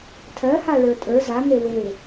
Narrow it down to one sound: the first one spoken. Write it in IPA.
tʰ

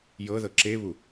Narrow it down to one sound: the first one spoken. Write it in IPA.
j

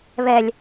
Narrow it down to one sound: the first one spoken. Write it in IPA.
β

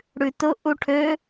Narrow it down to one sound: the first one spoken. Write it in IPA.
ɽ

